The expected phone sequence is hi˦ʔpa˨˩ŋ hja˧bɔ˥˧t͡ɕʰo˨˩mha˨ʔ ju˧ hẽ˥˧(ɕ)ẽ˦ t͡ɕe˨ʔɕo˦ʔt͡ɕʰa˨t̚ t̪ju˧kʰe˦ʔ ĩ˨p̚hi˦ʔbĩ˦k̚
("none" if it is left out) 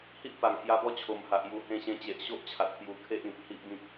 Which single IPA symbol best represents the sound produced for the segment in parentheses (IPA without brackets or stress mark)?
ɕ